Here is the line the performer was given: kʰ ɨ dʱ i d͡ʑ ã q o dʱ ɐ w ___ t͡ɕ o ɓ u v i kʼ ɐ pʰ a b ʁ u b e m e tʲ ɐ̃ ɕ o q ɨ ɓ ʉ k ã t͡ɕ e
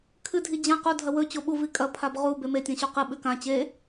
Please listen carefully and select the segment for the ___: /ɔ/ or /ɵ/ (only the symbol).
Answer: ɵ